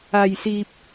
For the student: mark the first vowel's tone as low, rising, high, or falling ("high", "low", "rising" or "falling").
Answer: low